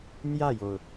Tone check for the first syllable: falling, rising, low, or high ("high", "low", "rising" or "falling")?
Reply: falling